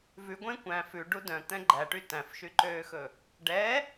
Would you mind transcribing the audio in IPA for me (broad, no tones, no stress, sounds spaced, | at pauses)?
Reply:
v ʉ ɡʷ ẽ kʷ æ̃ f ʉ ɖ u d œ̃ t̪ ɛ̃ ɡ͡ǃ æ ʈ y t æ̃ f ʃ y ǃ øː x ɵ | ɖ ɛ